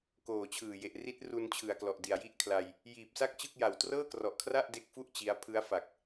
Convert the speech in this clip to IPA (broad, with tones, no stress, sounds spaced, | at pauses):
k oː˨˩ t͡ɕʰ ɯː˨˩ j e˨˩ ʔ r i˦˥ t̚ r u˧ n t͡ɕʰ ɯ˨˩ a̯ k l ɔ˨˩ ʔ d i˨˩ a̯ j i˥˩ ʔ kʰ l a˧ j | j iː˨˩ p̚ s a˥˩ k̚ t͡ɕ ɯ˥˩ k̚ j a˨˩ w t r ɤː˥˩ k r ɔ˨˩ ʔ kʰ r a˥˩ ʔ d e˦˥ k̚ f u˥˩ ʔ t͡ɕ i˦˥ a̯ pʰ ɯ˦˥ a̯ f a˨˩ k̚